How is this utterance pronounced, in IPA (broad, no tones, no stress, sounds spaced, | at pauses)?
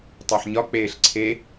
tˤ e ħ ɲ ɒ k͡p eː ɬ ǀʰ e